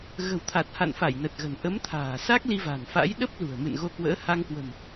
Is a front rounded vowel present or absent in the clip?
absent